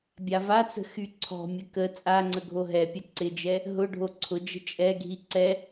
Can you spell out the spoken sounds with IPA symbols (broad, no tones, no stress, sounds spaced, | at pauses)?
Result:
bʲ a v a t͡s ə̤ x y ǀʰ ɔ̤ mʲ ə k ə t͡sʼ a ŋ͡ǀ ə ɡʱ o ɦ ɛ pʲ ɐ ǀ ɪ d͡ʒ ɛ | ɦ ʊ ɖʱ o ǀʰ ʊ d͡ʒ ə̤ t͡ʃʼ ɛ ɡʱ i ǀ ɛ